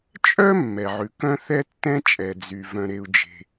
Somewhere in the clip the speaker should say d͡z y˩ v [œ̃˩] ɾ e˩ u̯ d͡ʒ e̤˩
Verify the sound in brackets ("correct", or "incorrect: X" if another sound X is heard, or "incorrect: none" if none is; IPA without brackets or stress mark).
correct